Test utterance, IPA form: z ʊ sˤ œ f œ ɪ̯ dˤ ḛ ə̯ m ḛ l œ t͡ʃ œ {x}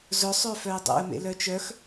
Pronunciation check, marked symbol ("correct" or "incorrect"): correct